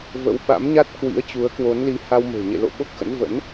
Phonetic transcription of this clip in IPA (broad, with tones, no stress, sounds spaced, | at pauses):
v ə̰˧˥ w ɓ a̰˧˥ m ɲ a˦˥ t̚ k w ḭ˧˥ ə̯ t͡ɕ u˨˦ ə̯ k w o˨˦ n l i˨˦ h a˧ w m e̤˨˩ ɲ ḛ˧˨ l o̰˧˨ ɓ o˦˥ k̚ x ə̰˧˥ n v ə̰˧˥ n